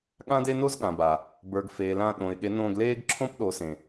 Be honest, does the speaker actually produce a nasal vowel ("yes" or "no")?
yes